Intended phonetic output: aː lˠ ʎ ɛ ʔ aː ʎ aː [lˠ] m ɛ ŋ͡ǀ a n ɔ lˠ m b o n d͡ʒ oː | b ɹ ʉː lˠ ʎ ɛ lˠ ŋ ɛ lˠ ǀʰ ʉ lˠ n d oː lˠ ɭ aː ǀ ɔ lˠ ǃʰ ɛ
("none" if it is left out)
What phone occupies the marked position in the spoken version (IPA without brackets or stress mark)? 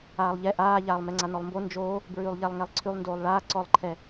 lˠ